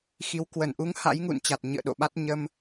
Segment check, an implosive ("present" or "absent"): present